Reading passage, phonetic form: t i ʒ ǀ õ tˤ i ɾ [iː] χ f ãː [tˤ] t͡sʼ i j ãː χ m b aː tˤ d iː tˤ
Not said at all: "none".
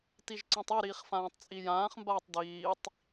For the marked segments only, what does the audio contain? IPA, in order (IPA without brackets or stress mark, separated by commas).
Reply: iː, tˤ